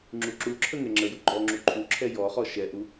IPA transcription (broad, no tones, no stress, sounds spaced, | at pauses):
ŋ͡ǁ u ǁ u ǁʰ ə ŋ ɛ ŋ͡ǁ ə j u ɡ͡ǃ ɔ ŋ͡ǁ u ǃʰ u ǁʰ ɛ j ɔ χ ɔ ʃ ɛ ʔ u